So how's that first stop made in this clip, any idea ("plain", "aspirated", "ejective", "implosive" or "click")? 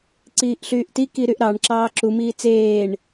click